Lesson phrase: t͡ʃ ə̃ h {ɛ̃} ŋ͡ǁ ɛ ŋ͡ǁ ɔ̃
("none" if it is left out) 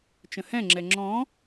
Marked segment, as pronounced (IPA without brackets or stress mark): ɛ̃